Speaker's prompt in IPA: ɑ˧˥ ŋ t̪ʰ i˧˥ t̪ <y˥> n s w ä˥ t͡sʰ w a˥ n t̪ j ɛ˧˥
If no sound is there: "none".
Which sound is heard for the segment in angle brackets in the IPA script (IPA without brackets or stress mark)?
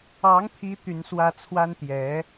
y˧˥